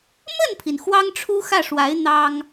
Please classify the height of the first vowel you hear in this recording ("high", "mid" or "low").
mid